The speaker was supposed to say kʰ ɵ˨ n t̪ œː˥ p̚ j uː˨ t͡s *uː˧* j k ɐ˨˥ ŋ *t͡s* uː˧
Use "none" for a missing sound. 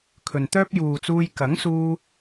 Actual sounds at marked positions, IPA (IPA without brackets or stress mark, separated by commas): uː˧, s